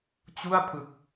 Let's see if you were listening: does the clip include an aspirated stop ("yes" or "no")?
yes